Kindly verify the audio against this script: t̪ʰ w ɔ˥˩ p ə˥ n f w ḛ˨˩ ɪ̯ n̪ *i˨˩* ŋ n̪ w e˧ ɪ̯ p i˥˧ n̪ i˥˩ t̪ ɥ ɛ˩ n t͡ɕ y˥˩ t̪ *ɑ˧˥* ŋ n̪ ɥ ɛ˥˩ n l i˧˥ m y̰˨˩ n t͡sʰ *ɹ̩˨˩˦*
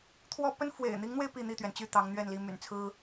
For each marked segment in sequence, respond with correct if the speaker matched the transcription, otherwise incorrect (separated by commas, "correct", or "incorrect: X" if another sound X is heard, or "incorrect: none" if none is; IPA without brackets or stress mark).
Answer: incorrect: i˧˥, correct, incorrect: ɹ̩˥